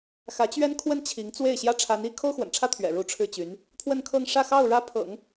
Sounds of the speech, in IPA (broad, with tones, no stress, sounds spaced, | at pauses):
x ä˧˥ t͡ɕ ɥ ɛ˥ n kʰ w ə˥ n t͡ɕʰ i˧˥ ŋ t͡s w e˥˩ ɪ̯ ɕ j ä˥ ʈ͡ʂʰ a˧˥ n i˥ kʰ o˥ ʊ̯ x w ə̰˨˩ n ʈ͡ʂʰ ä˥ t̪ʰ ɥ ɛ̰˨˩ ɻ u˧˥ ʈ͡ʂʰ ɻ̩˥˩ t͡ɕ y˧˥ n | t̪ʰ w ə˥˧ n kʰ ɤ˥˧ ŋ ʂ ä˥˧ x ɑ˥˩ ʊ̯ ɻ ä˥ pʰ ɤ̰˨˩˦ ŋ